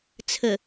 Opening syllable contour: low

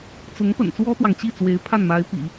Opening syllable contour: rising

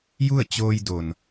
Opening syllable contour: falling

